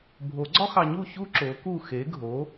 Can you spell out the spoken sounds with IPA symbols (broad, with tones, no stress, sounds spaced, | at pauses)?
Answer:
bʱ o˨˩˦ ɡ͡ǀ ɒ˥ x ɑ˧ ɲ u˥˨ ç u˥ ǁ o˨˥ k u˥˨ x e˨˥ ɡʱ o˨˥